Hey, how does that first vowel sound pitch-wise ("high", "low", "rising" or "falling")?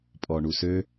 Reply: low